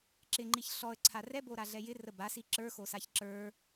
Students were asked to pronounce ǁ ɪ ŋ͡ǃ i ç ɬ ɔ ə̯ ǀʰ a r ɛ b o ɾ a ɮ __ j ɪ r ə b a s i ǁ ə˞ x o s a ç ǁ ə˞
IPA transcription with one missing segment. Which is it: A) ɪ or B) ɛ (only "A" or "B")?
B